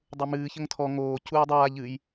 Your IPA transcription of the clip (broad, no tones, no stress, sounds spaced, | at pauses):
dˤ ə˞ m ɨː ç ə ŋ tʰ ɔ ŋ oː c uː dˤ aː ʎ ɨ j